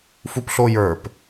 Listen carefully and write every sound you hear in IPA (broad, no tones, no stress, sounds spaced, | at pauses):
f u p ɬ o j ə˞ p